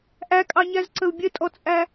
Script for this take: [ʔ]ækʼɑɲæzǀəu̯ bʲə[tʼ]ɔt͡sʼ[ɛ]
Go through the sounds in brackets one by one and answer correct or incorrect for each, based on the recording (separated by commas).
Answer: correct, correct, incorrect